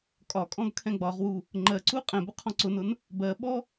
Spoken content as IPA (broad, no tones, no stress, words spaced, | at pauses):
kʼɒkʼɔ̃ɡ kʰɛ̃ɡ͡bɒʁwu | ŋ͡ǃɜǀu qʼɛ̃bʊ qʰɔ̃ǀʊnʊn | bɜɓɔ